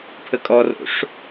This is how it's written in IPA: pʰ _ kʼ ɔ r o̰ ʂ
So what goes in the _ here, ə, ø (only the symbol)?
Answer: ə